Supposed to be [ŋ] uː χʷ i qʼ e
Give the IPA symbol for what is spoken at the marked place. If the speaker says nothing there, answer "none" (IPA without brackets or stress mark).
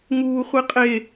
ŋ